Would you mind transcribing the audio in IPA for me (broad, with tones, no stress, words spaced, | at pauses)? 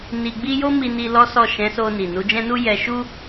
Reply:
ni˧ɡ͡bi˦ jo˦mi˧ni˧ lɔ˦sɔ˦˨ ʃɛ̃˨˦so˧ni˨ nu˨˦d͡ʒɛ̃˦nu˦ jɛ˧ʃu˦